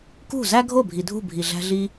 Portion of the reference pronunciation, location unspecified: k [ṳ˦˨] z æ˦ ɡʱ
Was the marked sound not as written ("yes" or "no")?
no